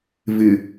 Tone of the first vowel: low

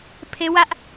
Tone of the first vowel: high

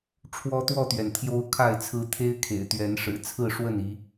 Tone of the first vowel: high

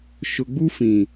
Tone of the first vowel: low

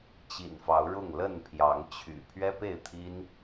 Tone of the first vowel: low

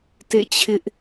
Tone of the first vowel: falling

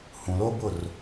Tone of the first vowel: low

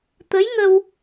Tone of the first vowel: rising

